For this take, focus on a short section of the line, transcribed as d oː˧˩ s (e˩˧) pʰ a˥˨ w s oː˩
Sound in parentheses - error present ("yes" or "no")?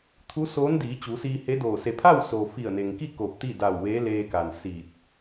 no